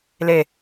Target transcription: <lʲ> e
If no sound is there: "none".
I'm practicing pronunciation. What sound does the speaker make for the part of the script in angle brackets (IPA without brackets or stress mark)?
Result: l